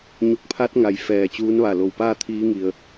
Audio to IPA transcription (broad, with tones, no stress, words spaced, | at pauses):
ɲu˧˩k̚pʰa˧˥t̚ ŋa˩jfɛː˧˩ t͡ɕuː˧˥nʋa˧˩ lo˧˩wpaː˥˨ t̪ʰiː˧˥ŋi˩ə̯